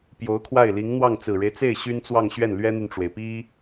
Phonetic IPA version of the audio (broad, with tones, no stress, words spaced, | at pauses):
pjo˧˥ʊ̯kʰwa˥˩ɪ̯ li˧˥ŋn̪wɑ˥˩ŋ t͡sɹ̩˨˩ɻe˦ɪ̯t͡se˥˩ɪ̯ ɕy˥nt͡swɑ˥˧ŋɕɥɛ˥˩n lɥɛ˥n̪y˨nʈ͡ʂwe˩ɪ̯ pi˥